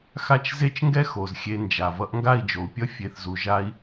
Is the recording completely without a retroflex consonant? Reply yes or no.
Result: yes